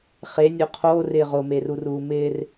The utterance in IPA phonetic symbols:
χenʲo qʰoːrɪː ʁomeruruː mɪːr

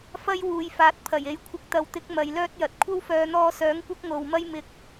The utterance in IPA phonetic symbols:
fɐ˥jwuː˨˧jfaː˨˥t̚ pʰɐ˨˩je˨˥jkʷʰɪ˧k̚ t̪ɐ˨˧wt̪ɪ˨˥k̚ mɐ˨˧jlœː˥t̚jɐ˨t̚ kʷʰɐ˥wfœː˨˧n̪ɔː˧sœː˨˥ŋ kʷɐ˥k̚ŋo˨wmɐ˥j mɪ˨˥k̚

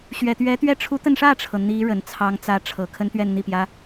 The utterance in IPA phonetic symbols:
ɕɥɛ˨˩t̪ɥɛ˧˥t̪ɥɛ˥˩ ʈ͡ʂʰu˧˥t̪ə˧nʂä˥˩ʈ͡ʂʰɤ˩ n̪i˧˥ ɻə˨˩nt͡sʰɑ˧˥ŋt͡sä˧˥ ʈ͡ʂʰɤ˨˩ kʰə˥nt̪ɥɛ˥˧nn̪i˥˩pjä˥

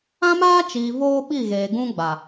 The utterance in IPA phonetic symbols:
ã˦maː˦t͡ʃiː˨ voː˦ɓi˦˨ɣeː˨ɡũ˦ ɡ͡ba˨

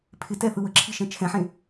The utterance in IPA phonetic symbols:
pʰɪtɛθɯ wəǁʰiʃɛ̃ t͡ʃʰɛ̃ħẽ

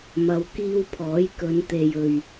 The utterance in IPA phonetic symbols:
mɐ˨˧wkiː˧wpʰɔː˨˥j kɵ˨˧nt̪e˨jɵ˨ɥ

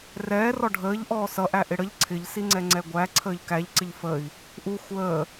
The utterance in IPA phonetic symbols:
rɛː rɔɖʱəːʎʔɔː sʌʔæ ʔɪɽəʎ ǀʰɪʎsiŋ͡ǀɛ ŋ͡ǀɛɡʷæ ǀʰəːʎkæʎ ǀɪʎfəi̯ | ʔu xʷəː

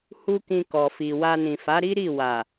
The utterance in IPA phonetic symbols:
hu˦kĩ˧ kɔ˨fi˨ wa˧nĩ˨ fa˨˦ɾi˦ɾi˦˨ wa˨

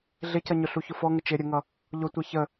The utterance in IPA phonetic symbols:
ɮɪcʌɲʊ ɬuçʊfɔŋə t͡ʃɪ ɾʲəŋʌ | ʎʊtʷɛ çə

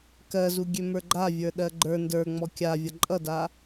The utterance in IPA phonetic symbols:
kɜzu ɡʲømə˞ɡ͡ǃavʲə˞ ɗɜɡ͡ǃə˞ ndə˞ ŋ͡mɔkʲa vʲʌǃʼʌda

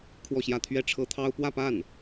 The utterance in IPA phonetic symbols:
kʰwɔ˥˧ɕjä˥˧ t̪ʰɥɛ˥˩ʈ͡ʂʰɤ˥t̪ʰɑ˥ʊ̯ pwä˥˧pa˥˩n

